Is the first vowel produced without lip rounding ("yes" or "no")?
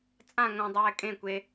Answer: yes